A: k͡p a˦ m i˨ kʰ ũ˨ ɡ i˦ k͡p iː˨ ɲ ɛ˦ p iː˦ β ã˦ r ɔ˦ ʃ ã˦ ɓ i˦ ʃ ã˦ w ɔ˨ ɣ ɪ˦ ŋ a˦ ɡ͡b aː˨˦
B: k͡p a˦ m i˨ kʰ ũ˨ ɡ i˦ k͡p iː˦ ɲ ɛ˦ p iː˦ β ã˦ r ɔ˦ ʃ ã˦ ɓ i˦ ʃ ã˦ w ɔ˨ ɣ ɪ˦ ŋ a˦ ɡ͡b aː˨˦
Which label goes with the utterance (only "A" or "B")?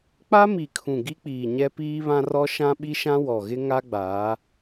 A